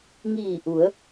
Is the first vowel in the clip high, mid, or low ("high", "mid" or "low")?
high